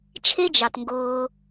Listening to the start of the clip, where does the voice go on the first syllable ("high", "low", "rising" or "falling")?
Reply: high